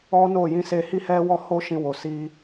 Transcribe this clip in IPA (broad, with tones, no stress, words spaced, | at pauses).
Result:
ɔ˦no˦˨ jĩ˧se˧hi˦ hɛ˦wɔ˦ ho˦ʃĩ˧wo˨ si˧